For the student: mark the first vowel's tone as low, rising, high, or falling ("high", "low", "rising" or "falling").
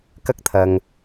high